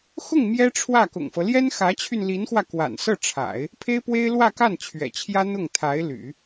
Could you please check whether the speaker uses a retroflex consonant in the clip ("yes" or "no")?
yes